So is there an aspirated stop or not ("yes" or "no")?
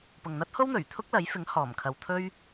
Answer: yes